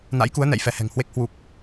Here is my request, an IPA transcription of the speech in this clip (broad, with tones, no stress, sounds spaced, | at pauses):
n a̰˧˥ j k u˨˦ ə̯ n ɛ̰˧˨ j f ɛ˨˦ h ɛ̤˨˩ ŋ h w e˦˥ k̚ h w u˨˩ k̚